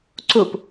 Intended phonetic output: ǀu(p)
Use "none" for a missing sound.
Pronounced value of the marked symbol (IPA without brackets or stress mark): p